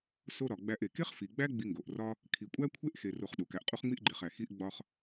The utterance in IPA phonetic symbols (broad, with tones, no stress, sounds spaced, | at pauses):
s o˧ ɾ ɒ˨ ɡ͡b æ˧ ʔ e˨ k e˦ χ f i˨ ɡ͡b æ˦ ɡ͡b i˧ ŋ ɡ o˨ ʔ r ɒ˦ | kʰ i˨ kʷʼ æ˦ kʷʰ e˦ ʔ x e˧ r o˧ χ ɗ u˨ k æ˨ ʔ qʼ u˧ χ ŋ͡m i˧ ʔ ɡ͡ǃ e˨ χ æ˨ x i˧ ʔ ɡ͡b ɒ˧ χ